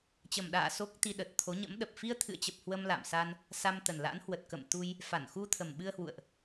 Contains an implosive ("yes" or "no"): yes